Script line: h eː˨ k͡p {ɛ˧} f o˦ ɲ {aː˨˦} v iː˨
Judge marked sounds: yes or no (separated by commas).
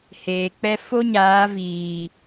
no, yes